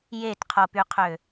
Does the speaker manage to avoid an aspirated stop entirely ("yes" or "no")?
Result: no